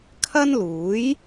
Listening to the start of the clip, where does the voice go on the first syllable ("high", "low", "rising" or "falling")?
high